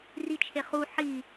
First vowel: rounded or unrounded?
unrounded